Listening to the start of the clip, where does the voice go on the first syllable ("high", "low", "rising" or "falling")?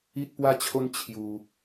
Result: high